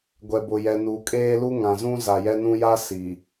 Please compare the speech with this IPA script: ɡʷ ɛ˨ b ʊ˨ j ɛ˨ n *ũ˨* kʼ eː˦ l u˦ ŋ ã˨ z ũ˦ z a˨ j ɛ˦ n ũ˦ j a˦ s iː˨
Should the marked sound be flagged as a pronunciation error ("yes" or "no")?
yes